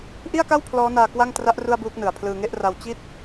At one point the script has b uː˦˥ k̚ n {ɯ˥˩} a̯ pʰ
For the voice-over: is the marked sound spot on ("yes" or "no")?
no